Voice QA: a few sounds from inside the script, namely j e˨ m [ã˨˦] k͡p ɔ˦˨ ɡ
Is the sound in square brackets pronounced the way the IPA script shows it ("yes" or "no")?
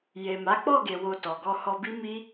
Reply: no